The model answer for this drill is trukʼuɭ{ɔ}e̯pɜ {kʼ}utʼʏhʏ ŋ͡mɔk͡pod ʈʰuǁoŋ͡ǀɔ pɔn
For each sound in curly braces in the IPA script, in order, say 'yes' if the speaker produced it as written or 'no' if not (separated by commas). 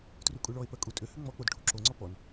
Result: yes, yes